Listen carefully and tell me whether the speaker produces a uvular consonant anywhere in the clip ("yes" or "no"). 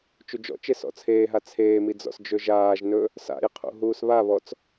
yes